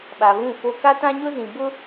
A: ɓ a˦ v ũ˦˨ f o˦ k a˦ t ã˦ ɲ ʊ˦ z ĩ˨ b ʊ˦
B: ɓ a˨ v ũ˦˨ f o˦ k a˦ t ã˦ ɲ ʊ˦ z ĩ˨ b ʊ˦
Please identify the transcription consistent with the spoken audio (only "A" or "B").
B